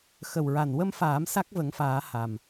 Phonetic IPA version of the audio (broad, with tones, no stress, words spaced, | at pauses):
xə˨˩wɹa˨˩nwə˧mfaː˨˩˦m sa˦˥k̚və˨˩˦ŋfaː˨˩˦ ha˨˩m